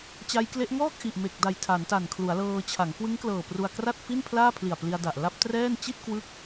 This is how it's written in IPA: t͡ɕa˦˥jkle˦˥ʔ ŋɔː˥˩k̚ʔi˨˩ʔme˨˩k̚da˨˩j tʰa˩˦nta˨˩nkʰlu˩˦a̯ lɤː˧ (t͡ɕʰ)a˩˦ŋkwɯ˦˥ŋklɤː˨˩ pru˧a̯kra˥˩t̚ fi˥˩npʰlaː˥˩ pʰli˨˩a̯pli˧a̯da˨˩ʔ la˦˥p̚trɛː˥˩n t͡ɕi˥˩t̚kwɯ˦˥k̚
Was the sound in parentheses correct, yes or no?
yes